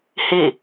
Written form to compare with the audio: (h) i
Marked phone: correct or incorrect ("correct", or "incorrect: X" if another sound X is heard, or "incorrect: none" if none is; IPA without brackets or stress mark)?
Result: correct